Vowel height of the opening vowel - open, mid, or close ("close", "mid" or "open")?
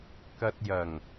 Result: open